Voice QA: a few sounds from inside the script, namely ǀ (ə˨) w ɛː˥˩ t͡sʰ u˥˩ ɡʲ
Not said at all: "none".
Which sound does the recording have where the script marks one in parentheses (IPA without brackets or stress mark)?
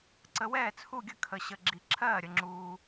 ə˨